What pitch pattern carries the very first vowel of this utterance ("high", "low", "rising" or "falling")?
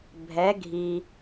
rising